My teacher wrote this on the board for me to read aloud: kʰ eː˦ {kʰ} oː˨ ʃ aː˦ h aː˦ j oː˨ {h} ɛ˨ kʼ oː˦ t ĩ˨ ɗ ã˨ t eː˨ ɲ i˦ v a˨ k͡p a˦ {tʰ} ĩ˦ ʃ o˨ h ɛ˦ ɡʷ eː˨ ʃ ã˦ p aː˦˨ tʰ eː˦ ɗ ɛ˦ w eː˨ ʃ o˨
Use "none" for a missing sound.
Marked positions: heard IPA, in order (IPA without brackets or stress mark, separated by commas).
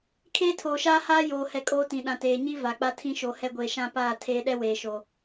tʰ, h, tʰ